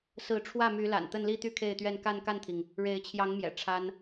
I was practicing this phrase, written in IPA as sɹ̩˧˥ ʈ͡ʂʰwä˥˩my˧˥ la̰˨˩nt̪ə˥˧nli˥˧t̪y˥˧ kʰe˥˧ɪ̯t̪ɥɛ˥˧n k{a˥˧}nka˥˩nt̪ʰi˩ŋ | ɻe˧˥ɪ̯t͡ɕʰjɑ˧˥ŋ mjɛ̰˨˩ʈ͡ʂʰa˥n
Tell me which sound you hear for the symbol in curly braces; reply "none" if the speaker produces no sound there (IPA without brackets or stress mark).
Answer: a˥˧